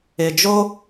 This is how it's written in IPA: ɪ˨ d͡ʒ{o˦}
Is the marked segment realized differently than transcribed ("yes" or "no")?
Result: no